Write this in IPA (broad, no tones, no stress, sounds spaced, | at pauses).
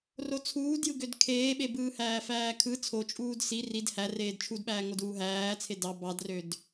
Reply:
r o t͡sʰ uː d j ɯ ɡ ø d kʰ eː ɓ e b ɯː h æː f æː kʰ ɯ t͡sʰ o t͡ʃʼ uː d s i r i d h æ r eː d t͡ʃʰ u d ɓ æː ŋ o d uː ɦ æː t͡sʰ e d ɑ b ɑ d r ø d